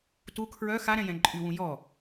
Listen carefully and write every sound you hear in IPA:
t u kʰ ɹ œ x a ɾ ɛ̃ j ɛ̃ ǃʼ y w ũ j ɔ

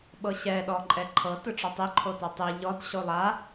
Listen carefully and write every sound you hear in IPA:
ɓ ɤ ɕ ɛ ɗ ɔ ǃʼ ɛ ǃʰ ɤ t ɯ ʈ͡ʂ ɔ tˤ i ǃʰ o t o tˤ i ʎ ɔ d ɕ o lˠ a

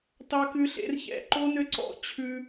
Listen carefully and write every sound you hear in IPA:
t ɑ˦ k ʉ˦ ɬ ḛ˦ r ç ɛ̰˨ ǃ o˦ n ø˦ ǀ ɔ̰˦ t͡ɕʰ ʉ˦

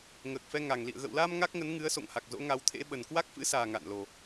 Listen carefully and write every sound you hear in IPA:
ŋ əː˨˩ k̚ f ɛ˧ ŋ a˨˩ ŋ l ḭ˧˨ ə̯ ɣ ə̰ː˧˨ w l aː˧ m ŋ a˦˥ k̚ ŋ ə˨˦ n ŋ ɨ˨˦ ə̯ s o̰˧˨ ŋ h a˨˩ k̚ z o̰˧˥ ŋ a˨˦ w t̪ʰ ḛ˧˥ ɓ ə˨˩ n k w a˦˥ k̚ f ɨ̰˧˥ s aː˨˩ ŋ a̰˧˨ n l o˨˩

